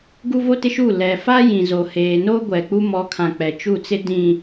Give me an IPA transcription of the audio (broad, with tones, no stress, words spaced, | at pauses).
ɡu˦vo˦tɪ˦ʃuː˦˨ lɛ˨fa˦jĩ˨ zo˨heː˨ no˦ɡʷɛ˨ k͡pu˦mɔ˨˦kʰã˨ k͡pɛ˨t͡ʃu˦˨t͡sɪ˦ dĩ˨